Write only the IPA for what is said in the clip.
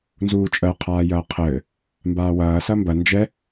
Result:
n z uː t͡ʃʼ ɜ qʰ aː j ɐː qʰ ɘː | m b aː w ɐː s ɐ m b ɐ n d͡ʒ ɛ

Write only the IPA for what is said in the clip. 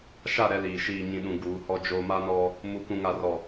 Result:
ʃ a˦˨ ɾ ɛ˦ l iː˨ ʃ iː˨ ɲ ĩ˨ ɗ ũ˨ ɡ uː˨˦ h ɔ˦ d͡ʒ oː˦ m a˦ n ɔ˦ | m u˨ k ũ˨ ŋ a˨ r ɔ˨

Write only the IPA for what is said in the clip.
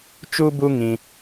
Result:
t͡ʃ u˦ b u˦ ŋ ĩ˦

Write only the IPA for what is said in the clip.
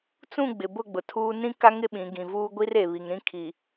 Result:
t͡s ũ˦˨ ɡ͡b ɪ˨ b ʊ˦˨ ɡ͡b ʊ˨ tʰ uː˦ n ĩ˦ k a˦ ŋ ɪ˦ ɓ ĩ˨˦ ɡ ĩ˨ v uː˦ ɡʷ i˦ r e˨ β i˨ ŋ ɾ ĩ˦ kʰ i˨

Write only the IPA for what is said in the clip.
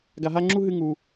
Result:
ɡ a˦ ɦ a˥ ŋ͡ǁ u˥ ɦ ɨ˥ ŋ u˥

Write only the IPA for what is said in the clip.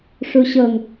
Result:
ʂ u ɕ ɤ ŋ

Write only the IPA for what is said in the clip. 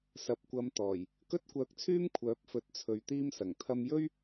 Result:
s ɐ˨ p̚ kʷ ɐ˨˧ m t̪ ɔː˨˩ j | k ɵ˥ t̚ kʷ œː˧ k̚ t͡sʰ yː˥ m kʷʰ œː˨˥ p̚ f ɵ˨˥ t̚ t͡sʰ ɵ˨ ɥ t̪ iː˥ m s ɐ˨˩ ŋ t̪ʰ ɐ˧ m j ɵ˥ ɥ

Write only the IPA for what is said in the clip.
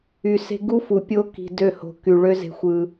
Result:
y˨ s e̤˦ ɡ u˦ f u˨ pʲ o˦ k i̤˧ d ø˦˨ h o̤˧ k y˨ ɭ ø˦ z e̤˧ xʷ ɯ˧

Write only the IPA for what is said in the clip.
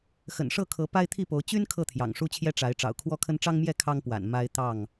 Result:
x ə̰˨˩ n ʂ ɤ˥˨ kʰ ɤ˨˦ p a˦ ɪ̯ t̪ʰ i˥˨ p o˨˦ ʊ̯ t͡ɕ y˦ n kʰ ɤ˥˨ t̪ʰ j ɑ̰˨˩ ŋ ʂ u˦ t͡ɕʰ j ɛ˦ ʈ͡ʂ a˨˦ ɪ̯ ʈ͡ʂ ɑ̰˨˩ ʊ̯ kʰ w ɔ˦ kʰ ə˦ n ʈ͡ʂ ɑ˦ ŋ m j ɛ˥˨ kʰ ɑ˦ ŋ p w a̰˨˩ n m a˦ ɪ̯ t̪ ɑ˥˨ ŋ

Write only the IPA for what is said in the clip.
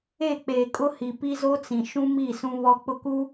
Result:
e˦˨ k͡p eː˨ kʼ ʊ˦ h i˨ p i˦ z o˦ t͡s ĩ˨ ʃ ũ˦ m i˦˨ s ũ˦ β ɔ˦ k͡p ʊ˦ k u˦

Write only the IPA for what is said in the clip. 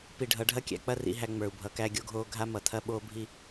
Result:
p i˨ ɖʱ ʌ˨˦ ɖʱ ɐ˦ kʲ æ̰˨ k͡p ɐ˦˨ r ḭ˨ ɦ æ˨ ŋ͡m ə˞˨ u̯ bʱ ʌ˨˦ k æ˦ ɡʲ o˦ ɡʱ oː˦ ɡʱ a˦ m ʌ˨ tʰ ɐ˦ ɓ oː˦ bʱ i˦

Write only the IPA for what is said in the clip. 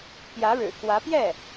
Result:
p j ä˧˥ ɻ ɻ̩˨˩ k w ä˧˥ p j ɛ˥˩

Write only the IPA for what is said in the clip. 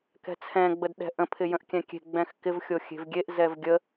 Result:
k ɛ̤ t͡sʰ ɛ̃ ɡ͡b ə d ɗ ɛ̤ ʔ ə̃ pʰ ɪ j ə̃ ʔ kʲ ɛ̃ kʲ e̤ ɡ͡b ɛ̃ x k ɪ v xʲ o xʲ e̤ v ɡʲ e ʔ z ɛ v ɡʲ ə

